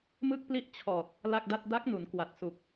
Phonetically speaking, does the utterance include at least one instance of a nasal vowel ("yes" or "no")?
no